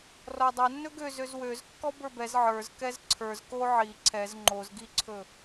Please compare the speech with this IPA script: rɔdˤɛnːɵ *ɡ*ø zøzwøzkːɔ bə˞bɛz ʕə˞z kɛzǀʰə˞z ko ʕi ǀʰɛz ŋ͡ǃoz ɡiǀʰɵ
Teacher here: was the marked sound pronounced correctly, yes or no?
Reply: yes